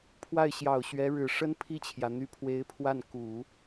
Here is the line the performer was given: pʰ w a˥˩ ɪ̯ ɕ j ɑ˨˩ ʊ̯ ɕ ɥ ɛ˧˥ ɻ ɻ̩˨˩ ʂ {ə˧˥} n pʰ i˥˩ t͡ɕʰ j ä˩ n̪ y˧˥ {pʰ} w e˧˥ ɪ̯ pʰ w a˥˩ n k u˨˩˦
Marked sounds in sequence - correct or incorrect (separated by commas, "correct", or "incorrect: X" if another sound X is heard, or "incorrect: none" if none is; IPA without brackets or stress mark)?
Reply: incorrect: ə˥, correct